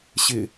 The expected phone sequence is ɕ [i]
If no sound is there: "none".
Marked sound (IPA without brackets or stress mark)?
ɪ